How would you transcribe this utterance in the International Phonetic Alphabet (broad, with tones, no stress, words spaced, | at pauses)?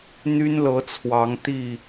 n̪y˦nlɤ˨˦ t͡sʰwɑ˨˦ŋt̪i˥˨